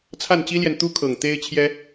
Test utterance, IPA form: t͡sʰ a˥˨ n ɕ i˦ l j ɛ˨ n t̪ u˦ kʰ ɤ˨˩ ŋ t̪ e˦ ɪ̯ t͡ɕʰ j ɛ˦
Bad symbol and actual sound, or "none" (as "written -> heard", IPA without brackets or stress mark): ɕ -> t͡ɕ